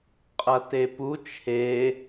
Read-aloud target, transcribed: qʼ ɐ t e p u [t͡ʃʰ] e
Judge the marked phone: correct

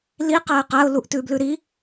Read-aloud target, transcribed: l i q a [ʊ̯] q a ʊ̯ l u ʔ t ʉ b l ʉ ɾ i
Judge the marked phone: incorrect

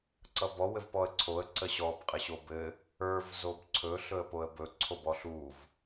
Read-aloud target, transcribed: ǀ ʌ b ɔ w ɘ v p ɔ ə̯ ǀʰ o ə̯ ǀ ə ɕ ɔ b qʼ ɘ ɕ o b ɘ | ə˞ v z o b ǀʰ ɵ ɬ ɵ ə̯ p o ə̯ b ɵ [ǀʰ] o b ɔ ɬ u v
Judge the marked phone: correct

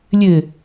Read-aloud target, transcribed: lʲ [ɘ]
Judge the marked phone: correct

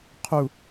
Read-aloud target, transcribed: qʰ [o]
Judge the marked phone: incorrect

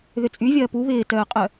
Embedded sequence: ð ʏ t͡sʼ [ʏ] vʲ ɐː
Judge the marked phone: incorrect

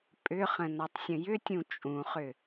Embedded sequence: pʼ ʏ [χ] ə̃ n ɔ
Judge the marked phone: correct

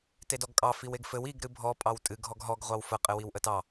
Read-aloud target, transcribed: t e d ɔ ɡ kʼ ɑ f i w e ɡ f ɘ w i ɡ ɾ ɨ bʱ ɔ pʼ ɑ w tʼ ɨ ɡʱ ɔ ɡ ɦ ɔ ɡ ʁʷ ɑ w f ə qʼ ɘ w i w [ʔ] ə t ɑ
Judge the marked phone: correct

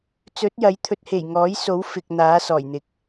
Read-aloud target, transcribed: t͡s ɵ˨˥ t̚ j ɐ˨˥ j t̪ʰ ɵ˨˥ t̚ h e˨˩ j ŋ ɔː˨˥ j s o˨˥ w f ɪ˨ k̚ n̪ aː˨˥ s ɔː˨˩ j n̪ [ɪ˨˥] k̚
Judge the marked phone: correct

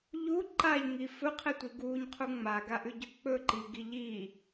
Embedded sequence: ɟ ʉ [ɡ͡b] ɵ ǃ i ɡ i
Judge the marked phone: incorrect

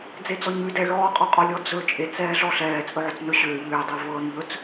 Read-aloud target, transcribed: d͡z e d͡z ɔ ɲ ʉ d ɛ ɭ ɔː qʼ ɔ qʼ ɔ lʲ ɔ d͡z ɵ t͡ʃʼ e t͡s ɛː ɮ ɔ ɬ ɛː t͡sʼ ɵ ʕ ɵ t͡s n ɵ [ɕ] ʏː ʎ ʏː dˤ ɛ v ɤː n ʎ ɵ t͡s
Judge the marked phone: correct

